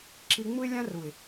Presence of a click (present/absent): present